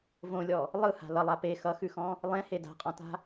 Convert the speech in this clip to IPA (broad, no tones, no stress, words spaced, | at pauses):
võlʲɔ | lˠɯha̤ lʌlˠa pe xʌxʉxɔ̃ | lˠẽhe da̤qʼɔ̃ta̤